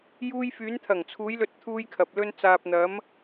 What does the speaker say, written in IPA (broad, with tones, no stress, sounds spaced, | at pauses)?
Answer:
j uː˧ j f yː˨˧ n t̪ʰ ɐ˨˩ ŋ t͡sʰ uː˨˧ j l ɵ˧ t̚ t̪ʰ uː˧ j kʰ ɐ˨ p̚ l ɵ˧ n t͡s aː˨ p̚ n̪ ɐ˨˧ m